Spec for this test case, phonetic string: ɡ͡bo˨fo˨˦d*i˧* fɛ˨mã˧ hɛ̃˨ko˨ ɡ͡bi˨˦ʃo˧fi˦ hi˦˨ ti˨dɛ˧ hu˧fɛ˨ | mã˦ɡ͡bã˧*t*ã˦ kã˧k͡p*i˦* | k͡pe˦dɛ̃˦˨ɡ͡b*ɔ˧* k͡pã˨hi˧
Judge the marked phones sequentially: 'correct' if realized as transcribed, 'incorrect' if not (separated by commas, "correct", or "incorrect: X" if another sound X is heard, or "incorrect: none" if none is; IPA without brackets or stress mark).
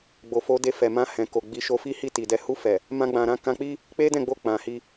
incorrect: e˧, incorrect: ɾ, correct, incorrect: o˧